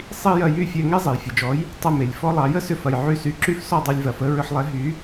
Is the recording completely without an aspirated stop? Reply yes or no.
yes